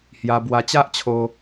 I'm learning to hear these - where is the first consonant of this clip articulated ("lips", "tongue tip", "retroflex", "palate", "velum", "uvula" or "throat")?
throat